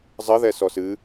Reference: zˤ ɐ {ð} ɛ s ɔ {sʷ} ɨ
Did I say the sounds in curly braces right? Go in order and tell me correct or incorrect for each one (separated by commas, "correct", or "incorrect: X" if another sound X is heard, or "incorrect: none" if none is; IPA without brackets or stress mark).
correct, incorrect: s